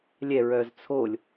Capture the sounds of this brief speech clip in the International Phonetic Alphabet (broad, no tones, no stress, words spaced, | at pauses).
lʲɛɹœz t͡sʰolʲ